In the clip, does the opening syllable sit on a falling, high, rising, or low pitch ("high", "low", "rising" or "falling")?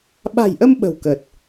low